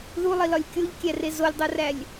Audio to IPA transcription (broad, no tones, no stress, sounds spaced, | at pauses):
ð u lˠ i l ɒ lʲ kʲ o ʎ kʲ æ r e z o lʲ dˤ o r æ lʲ